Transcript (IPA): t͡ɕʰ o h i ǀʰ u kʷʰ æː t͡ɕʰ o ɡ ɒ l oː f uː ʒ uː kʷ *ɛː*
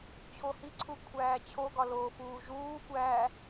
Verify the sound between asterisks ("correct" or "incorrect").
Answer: incorrect